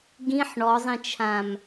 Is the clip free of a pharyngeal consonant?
no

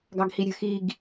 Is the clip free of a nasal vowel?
yes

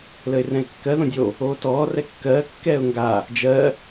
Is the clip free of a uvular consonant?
yes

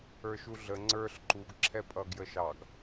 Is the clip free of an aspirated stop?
no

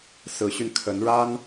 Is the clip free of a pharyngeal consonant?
yes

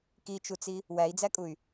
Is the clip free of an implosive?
yes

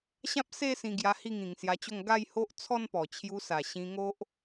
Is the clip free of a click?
yes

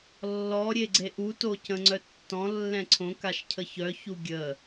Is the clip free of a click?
no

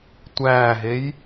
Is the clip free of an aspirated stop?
yes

